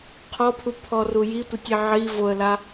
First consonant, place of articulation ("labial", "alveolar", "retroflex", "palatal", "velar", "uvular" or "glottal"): uvular